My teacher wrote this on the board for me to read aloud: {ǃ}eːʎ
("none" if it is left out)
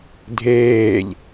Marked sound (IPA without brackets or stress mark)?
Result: dʱ